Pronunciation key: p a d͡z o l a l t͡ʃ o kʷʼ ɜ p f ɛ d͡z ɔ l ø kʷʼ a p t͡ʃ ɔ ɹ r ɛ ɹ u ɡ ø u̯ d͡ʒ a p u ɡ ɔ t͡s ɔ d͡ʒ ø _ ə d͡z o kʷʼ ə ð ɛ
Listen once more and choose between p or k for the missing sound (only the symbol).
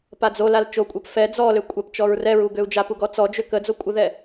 k